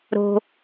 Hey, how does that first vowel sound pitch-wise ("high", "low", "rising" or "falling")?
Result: low